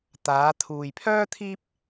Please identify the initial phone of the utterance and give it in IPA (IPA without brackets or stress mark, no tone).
t̪